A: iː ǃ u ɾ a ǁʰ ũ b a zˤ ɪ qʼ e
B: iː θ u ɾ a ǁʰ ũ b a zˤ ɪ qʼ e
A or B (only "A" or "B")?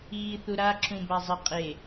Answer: B